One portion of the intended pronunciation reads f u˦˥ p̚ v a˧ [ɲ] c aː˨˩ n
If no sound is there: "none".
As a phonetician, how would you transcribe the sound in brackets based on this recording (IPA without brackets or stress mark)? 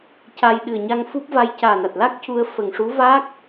j